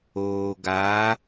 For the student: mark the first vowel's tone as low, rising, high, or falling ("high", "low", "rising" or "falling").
low